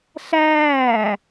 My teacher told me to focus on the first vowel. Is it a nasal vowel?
no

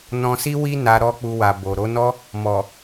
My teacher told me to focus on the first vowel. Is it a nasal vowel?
yes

